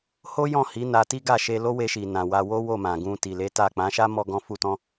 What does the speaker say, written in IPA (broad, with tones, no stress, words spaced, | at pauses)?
ho˦ jɔ̃˦˨hi˨˦ na˧ti˦ɡa˦˨ ʃe˧ lo˦we˧ ʃi˨ nã˨wa˧ wo˦ wo˦˨mã˨ɡũ˧ ti˨le˨˦ ta˦˨ k͡pã˨˦ʃa˦mɔ˧ ɡɔ̃˦fu˦tɔ̃˦